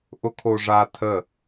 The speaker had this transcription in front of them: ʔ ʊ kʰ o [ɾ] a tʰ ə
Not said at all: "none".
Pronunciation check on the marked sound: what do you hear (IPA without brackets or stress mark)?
ʐ